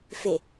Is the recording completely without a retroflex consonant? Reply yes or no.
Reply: yes